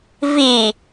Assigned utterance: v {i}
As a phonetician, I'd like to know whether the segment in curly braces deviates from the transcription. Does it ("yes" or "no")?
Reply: no